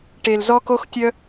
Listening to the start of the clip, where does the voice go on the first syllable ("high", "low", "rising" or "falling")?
low